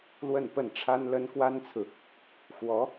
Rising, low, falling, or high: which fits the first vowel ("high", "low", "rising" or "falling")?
falling